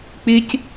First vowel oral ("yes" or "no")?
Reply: yes